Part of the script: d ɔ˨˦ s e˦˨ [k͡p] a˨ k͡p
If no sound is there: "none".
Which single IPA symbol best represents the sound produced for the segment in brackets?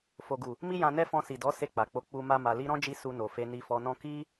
k͡p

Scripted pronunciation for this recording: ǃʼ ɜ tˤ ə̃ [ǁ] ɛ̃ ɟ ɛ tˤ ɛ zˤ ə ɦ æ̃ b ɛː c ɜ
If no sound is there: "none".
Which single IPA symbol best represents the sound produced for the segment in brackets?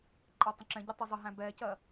ǁ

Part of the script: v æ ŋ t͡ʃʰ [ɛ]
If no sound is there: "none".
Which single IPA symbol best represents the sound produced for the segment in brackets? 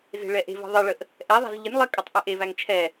ɛ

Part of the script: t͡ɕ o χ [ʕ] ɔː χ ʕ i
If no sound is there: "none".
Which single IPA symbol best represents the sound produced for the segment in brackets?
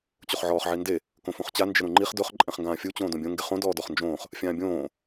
ʕ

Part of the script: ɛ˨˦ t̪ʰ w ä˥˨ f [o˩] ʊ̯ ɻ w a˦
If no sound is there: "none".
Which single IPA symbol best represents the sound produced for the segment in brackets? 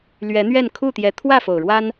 o˩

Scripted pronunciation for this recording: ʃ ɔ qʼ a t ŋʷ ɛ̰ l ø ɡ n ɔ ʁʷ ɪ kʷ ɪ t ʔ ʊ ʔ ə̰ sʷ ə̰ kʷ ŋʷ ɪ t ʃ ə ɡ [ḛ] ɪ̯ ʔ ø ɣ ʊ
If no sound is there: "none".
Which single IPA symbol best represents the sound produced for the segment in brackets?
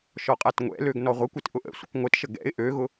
ɛ̰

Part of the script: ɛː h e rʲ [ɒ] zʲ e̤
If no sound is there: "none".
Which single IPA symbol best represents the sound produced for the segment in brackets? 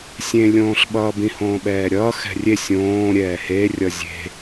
ʌ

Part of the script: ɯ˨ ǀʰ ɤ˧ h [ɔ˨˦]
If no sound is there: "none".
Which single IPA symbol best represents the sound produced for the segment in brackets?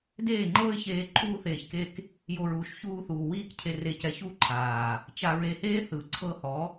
ɔ˨˦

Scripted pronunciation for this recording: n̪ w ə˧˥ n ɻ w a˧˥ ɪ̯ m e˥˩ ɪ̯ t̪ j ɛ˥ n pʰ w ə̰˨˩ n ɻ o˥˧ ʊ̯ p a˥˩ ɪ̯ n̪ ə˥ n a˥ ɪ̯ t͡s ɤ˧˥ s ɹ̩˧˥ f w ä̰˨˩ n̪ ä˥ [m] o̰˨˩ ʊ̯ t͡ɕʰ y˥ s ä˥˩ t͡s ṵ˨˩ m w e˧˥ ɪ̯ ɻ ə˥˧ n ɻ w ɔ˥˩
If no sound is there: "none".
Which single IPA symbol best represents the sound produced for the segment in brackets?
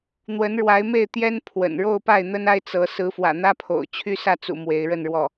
pʰ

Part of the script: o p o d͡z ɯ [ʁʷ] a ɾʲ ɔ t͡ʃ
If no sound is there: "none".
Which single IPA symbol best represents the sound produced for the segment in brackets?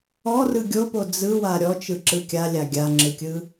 w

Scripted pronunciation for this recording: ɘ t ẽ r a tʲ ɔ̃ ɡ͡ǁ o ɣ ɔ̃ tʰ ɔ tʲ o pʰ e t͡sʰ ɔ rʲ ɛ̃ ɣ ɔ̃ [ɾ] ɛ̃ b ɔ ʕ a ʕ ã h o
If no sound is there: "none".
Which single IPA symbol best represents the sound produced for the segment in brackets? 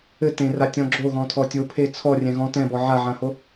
t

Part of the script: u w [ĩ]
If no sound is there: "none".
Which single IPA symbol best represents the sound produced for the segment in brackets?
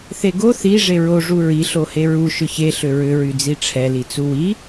i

